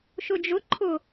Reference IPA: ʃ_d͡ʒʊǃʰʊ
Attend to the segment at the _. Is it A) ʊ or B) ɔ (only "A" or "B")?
A